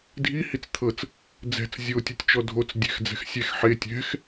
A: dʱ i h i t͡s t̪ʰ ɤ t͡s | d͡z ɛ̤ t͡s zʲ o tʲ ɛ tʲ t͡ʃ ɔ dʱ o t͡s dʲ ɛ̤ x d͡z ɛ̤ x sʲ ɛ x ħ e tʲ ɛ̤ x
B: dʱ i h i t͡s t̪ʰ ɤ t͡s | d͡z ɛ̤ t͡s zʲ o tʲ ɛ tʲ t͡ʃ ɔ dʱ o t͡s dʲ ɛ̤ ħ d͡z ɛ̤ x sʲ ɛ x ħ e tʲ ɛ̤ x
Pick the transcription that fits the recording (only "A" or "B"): A